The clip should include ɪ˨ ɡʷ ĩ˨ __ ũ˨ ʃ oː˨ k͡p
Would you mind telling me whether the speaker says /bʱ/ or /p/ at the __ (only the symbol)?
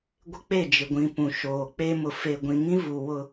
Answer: p